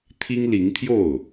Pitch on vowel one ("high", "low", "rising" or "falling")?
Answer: high